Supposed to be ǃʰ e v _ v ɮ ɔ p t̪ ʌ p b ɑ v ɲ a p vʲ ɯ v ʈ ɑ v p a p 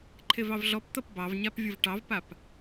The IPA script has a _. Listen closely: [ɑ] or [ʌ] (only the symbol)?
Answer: ɑ